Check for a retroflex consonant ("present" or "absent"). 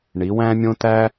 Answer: present